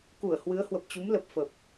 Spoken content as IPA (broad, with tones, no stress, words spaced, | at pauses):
ku˧˩ə̯hwɨ˨˦ə̯hwə˨˩p̚t͡ɕu˨˦m lə˨˩p̚fə˨˩p̚